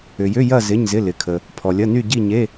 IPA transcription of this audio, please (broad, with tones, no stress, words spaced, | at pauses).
ʏ˨jʏ˧˥˧ jɐ˥˧ zɪ˧˥˧ɲzɪ˧˥˧ lɪ˨kʰə˨ | pʰɔ˨lʲɐ˧˥˧ny˥˧ ɟi˥˧ɲe˧˥˧